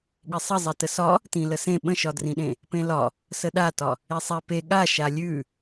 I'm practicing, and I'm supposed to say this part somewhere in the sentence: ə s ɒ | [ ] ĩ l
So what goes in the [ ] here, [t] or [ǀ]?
t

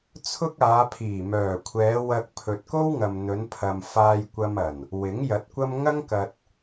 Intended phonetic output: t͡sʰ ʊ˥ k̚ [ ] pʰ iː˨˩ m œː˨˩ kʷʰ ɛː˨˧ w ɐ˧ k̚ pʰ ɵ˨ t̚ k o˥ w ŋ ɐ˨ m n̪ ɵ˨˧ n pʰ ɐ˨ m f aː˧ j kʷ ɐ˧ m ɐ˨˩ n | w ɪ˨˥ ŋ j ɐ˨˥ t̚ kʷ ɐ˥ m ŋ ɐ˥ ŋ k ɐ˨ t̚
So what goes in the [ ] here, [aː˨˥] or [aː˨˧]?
aː˨˧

